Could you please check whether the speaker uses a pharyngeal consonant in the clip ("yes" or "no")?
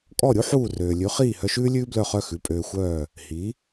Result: yes